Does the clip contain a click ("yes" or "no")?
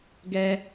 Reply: no